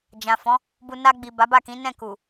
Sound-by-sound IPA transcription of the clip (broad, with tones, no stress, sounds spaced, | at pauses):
d͡ʒ ã˨ f ɔ̃˨˦ | b u˧ n a˧ ɡ͡b i˨ b a˨˦ b a˦˨ k ĩ˨˦ n ɛ̃˦˨ k u˨